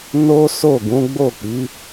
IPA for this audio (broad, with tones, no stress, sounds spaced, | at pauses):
n o˦ s o˦˨ ɡ ũ˨˦ ɡ͡b o˦˨ k͡p i˨˦